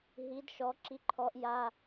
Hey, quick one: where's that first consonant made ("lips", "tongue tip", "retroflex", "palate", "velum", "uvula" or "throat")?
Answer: throat